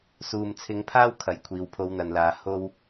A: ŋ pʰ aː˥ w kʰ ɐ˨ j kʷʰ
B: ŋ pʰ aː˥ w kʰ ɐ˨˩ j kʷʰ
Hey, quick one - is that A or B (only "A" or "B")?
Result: B